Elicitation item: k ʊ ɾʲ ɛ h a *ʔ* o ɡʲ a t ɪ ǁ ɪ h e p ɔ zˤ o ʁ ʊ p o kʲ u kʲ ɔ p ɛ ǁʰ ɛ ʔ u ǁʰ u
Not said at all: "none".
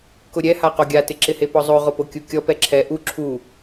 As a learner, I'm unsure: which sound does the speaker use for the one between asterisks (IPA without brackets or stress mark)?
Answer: q